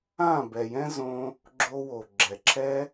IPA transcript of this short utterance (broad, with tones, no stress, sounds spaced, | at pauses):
ã˦˨ b ɛ˨ j ɛ̃˦ z õ˧ | ɡ͡ǁ o˧ w o˨ ɡ͡ǁ ɛ˨ ǁʰ ɛ˦